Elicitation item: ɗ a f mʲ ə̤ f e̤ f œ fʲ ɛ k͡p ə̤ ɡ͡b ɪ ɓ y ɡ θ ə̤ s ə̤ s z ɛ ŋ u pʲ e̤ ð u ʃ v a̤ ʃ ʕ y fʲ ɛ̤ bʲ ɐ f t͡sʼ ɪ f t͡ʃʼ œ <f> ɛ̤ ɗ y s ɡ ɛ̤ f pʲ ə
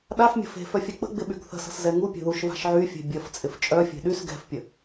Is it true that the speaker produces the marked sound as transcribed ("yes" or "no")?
no